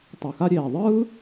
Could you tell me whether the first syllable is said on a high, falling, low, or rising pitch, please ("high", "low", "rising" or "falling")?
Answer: low